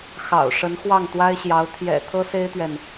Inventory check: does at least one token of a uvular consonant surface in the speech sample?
no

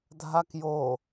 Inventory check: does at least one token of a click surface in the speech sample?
no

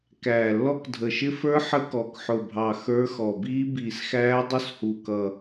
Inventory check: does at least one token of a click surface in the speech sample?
no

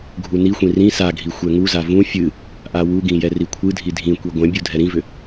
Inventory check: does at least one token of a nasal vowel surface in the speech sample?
yes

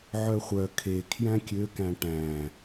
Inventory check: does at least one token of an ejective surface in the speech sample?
no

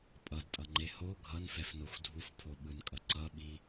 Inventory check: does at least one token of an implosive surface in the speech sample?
yes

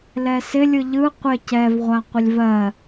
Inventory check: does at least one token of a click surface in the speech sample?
no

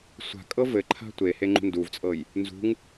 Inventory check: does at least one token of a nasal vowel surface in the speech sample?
no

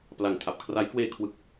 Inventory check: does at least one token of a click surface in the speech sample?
no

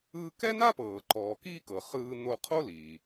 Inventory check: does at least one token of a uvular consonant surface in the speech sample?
yes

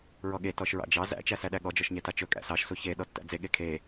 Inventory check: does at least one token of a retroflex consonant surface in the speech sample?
no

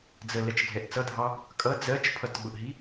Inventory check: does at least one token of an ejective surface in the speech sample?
yes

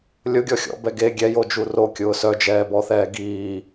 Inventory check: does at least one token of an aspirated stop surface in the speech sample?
no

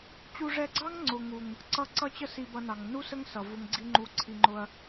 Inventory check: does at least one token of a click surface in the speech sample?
yes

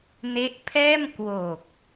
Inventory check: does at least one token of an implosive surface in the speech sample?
no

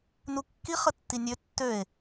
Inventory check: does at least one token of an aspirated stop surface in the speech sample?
no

